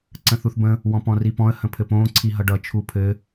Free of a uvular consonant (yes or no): yes